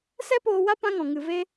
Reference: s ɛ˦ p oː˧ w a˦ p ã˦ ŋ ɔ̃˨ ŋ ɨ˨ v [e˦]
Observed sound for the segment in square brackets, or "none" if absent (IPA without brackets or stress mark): e˦